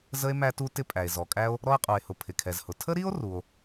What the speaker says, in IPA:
z ə˥ e̯ m æ˥ t u˥ t ɪ˥ pʼ æ˩ e̯ z ɔ˩ kʼ æ˥ o̯ | ɾ ɔ˥ e̯ qʼ u˩ e̯ h ʊ˩ pʰ ɪ˩ kʰ ɛ˩ z h ʊ˩ tʰ ə˥ ɾ i˥ o̯ r u˩ o̯

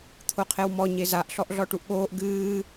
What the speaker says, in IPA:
t̪ʰ o qʰ e w m ɔ ɲ e z a ʔ ɬ ɔ ʔ ɮ ɔ ʈ u ʔ ɠ oː ʔ ɡ ɨː

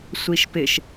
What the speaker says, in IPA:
sʷ i ʃ p ɪ ʃ

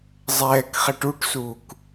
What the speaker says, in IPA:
zˤ ɛː k χ ɛ ʈ u ʈ s uː k

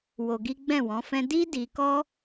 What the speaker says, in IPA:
w o˧ ɡ i˦ ɡ͡b ɛ̃˦˨ w ɔ̃˨˦ f ɛ̃˦ d i˦ d i˧ k ɔ˦

